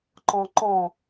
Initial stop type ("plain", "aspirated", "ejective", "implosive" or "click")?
click